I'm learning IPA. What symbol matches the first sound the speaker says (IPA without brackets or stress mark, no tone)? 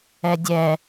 ɛ